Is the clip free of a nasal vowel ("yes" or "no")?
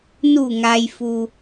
yes